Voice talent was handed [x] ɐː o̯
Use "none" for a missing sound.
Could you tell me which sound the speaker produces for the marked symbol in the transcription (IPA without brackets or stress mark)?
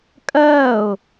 kʼ